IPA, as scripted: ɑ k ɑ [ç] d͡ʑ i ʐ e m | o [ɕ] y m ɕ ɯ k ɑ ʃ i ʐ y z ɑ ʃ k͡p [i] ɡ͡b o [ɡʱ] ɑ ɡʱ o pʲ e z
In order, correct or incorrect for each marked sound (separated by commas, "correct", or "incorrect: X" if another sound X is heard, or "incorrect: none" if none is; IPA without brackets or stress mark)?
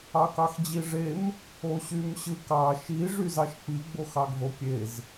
incorrect: x, correct, correct, incorrect: x